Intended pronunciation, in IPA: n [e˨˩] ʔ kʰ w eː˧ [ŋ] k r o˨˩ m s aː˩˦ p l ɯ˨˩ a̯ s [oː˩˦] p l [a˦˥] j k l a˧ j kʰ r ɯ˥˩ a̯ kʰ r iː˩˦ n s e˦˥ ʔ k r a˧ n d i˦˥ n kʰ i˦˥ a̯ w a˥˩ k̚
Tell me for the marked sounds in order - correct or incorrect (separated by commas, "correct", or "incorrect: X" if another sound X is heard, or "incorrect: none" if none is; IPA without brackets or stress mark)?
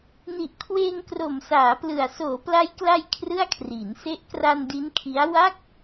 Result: incorrect: i˨˩, correct, correct, correct